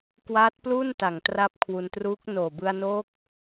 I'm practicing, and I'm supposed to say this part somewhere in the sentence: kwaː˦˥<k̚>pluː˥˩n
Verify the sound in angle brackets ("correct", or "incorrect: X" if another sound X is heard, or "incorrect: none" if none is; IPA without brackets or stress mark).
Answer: incorrect: t̚